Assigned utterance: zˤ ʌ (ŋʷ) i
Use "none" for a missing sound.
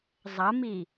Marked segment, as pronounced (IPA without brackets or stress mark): m